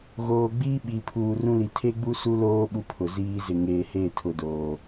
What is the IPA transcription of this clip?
ɣ oː˨ ɡ͡b iː˦ ɓ i˨ pʰ uː˨ r ũ˦ l i˨ tʰ e˦ ɡ͡b u˦ s u˦ l oː˦ ɓ u˦ pʰ ʊ˨ z iː˦ z ɪ˨ ŋ eː˨ h e˦˨ tʰ ʊ˨ d oː˨

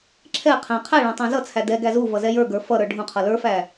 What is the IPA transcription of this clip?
ǁʰ ɛ qʰ æ̃ qʰ æ ɭ æ̃ tˤ æ̃ z ʌ t͡sʰ æ d ɛ ɡ æ z u v ʌ z ɛ j ə˞ ɡ ə˞ f ʌ ɾ ə˞ ɖʱ ũ qʰ ʌ l ə˞ f æ

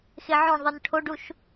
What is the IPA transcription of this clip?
x e ʕ õ ɳ ðˤ i n ʈʰ o ɖ u ʃ

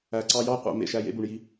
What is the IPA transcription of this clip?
æ˨ ǀ ɑ˧ j ɑ˦ qʷ æ̰˧ m ḛ˨ ʃ æ˦˨ j ḛ˦ b u˨ ɳ j i˧

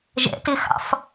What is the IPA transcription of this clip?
ʒ ɛ̰ t ɪ x ɑ̰ f

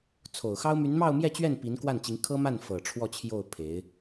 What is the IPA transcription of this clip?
t͡sʰ o˨˩ ʊ̯ x ɑ˥ ʊ̯ m y˧˥ n m ɑ˥˧ ʊ̯ m j ɛ˥˧ t͡ɕ ɥ ɛ˥˩ n p i˧˥ n k w a˥˩ n t͡ɕ i˧˥ ŋ kʰ ɤ˥ m a˥˩ n f ɤ˨˩ ʈ͡ʂʰ w ɔ˥˧ t͡ɕʰ j o˥˩ ʊ̯ pʰ e˧˥ ɪ̯

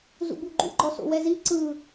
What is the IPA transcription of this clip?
z ṵ b u ɡ͡ǃ ṵ ɡ͡ǃ ɔ s o̰ w ɛ z i ǀ ɯ

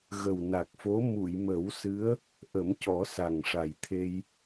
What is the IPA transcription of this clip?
ɣ ə˨˩ w n a˨˩ k̚ f o˧˥ m u˨˩˨ j m ə˨˩˦ w s ɨ˧˥ ə̯ | ʔ ə˨˩˦ m c ɔ˨˩˦ s a˨˩ ŋ ʂ a˨˩ j t̪ʰ e˧ j

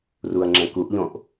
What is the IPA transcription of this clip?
r u ɐ̯ ŋ͡ǁ ɛ̃ k u ʔ ʎ õ ʔ

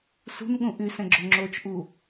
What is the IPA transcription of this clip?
s ṳ n ɠ ũ ʔ y s ɛ̃ ɡ͡ǁ o ŋ͡ǁ o t͡ʃ ʔ u

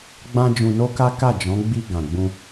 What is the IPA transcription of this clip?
ɡ͡b ã˦ d͡ʒ ũ˧ n o˦ k a˦ k a˦˨ d͡ʒ ɔ̃˨˦ ɡ͡b i˧ ɡ ã˨ ɡ͡b ũ˧

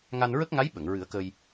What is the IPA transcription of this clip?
ŋ a˧ n ɹ ə˦˥ k̚ ŋ a˧˥ j ɓ ə˨˩˨ ŋ ɹ ɨ˨˩˦ ə̯ k ə˧ j

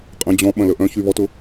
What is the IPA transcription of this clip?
qʼ ə̃ d͡ʑ ɔ̃ ɓ ɐ̃ l ə ʔ œ̃ ç y β ɔ t ʊ

